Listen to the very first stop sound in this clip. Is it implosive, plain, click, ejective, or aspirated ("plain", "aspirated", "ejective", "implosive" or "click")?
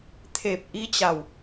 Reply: aspirated